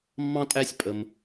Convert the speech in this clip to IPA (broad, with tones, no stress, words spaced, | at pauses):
mːɑ̃˥tʼæ˥sʲpʼə˧m